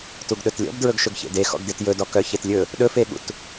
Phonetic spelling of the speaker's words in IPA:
t u ɡ ɗ ɵ t lʲ ɔ̰ b d ɹ ɵ ɡ ʃ ɵ ɡ ç ḛ d e x ɔ̰ ɡ d e t j ɵ d ɔ k œ ç e t lʲ ɵ | ɗ ɵ f e ɠ ṵ t

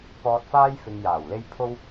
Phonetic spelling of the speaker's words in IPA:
p ɔː˧ t̚ f aː˥ j f ɪ˧ ŋ j aː˨˩ w l e˥ j pʰ o˥ w

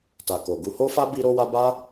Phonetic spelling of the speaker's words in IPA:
t a˨ k o˨ ɡ u˧ h o˦ f a˦ b i˦ ɾ o˦ w a˦ b a˦

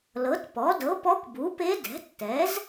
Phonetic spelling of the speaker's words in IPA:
l ɤ˩˥ t p ɔ˩˥ d ɤ˩˥ p ɔ˧˥ kʷ b u˩˥ p e˧˥ d ɛ̤˩˥ tː ɛ˩˥ z

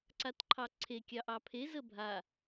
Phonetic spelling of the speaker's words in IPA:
ǀ a t ǃʰ ɑ ǀʰ e kʲ ɑ ʔ ɑ pʰ e z ə bʱ a

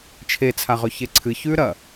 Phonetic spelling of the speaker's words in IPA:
t͡ʃʰ e t͡sʰ a ʁ ɵ ç e ǀʰ ɨ ç ʉ ɾ ɐ

